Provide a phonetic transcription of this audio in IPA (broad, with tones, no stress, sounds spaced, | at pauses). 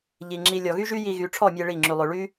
ʎ i˨ ŋ͡ǁ i˧ lʲ ɔ˨ ɣ y˦ ʒ y˦ j i˧ ɣ y˨˦ ʈ͡ʂʰ ɔ˦˨ mʲ e˧ ɭ i˦˨ ŋ͡ǁ y˧ lˠ ø˧ ɭ y˦